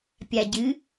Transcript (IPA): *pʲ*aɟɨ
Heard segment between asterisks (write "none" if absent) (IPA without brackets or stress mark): pʲ